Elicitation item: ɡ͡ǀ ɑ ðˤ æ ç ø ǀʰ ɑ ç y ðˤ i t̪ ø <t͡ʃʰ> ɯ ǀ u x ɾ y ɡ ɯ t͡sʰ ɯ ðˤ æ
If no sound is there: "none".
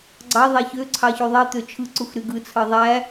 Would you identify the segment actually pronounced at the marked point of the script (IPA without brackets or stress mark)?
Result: t͡ʃʰ